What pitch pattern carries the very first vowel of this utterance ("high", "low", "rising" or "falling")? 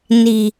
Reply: low